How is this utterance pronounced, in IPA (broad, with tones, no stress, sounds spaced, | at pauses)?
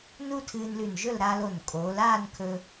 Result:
n u˥ tʰ ɨː˧ n l ʉ˧˩ n ʒ ɵ˥˧ l ɾ aː˧ l o˧˩ n kʼ oː˩˧ l aː˥˧ n kʰ ɵ˧